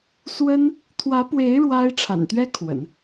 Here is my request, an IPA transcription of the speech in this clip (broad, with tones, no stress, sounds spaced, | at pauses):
s w ə˥ n | t̪ʰ w ä˧˥ p w e˧˥ ɪ̯ ɻ w a˥ ɪ̯ ʈ͡ʂʰ a̰˨˩ n t̪ ɥ ɛ˥ kʰ w ə̰˨˩˦ n